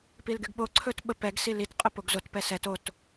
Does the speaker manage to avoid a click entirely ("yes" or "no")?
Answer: no